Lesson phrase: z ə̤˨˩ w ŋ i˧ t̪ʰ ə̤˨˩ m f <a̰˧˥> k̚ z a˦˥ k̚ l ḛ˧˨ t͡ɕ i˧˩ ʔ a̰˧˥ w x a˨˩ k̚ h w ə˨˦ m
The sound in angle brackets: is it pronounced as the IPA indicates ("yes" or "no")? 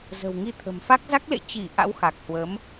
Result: no